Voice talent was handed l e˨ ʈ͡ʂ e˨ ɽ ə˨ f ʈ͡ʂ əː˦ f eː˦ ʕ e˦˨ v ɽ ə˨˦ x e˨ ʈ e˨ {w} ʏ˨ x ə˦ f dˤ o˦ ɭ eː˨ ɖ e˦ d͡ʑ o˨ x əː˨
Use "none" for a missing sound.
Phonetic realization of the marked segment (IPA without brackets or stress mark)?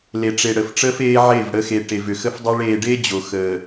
v